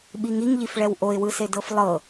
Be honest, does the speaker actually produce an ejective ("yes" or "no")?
no